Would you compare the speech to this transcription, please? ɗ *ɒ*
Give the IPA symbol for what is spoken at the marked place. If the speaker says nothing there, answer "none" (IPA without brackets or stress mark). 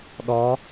ɒ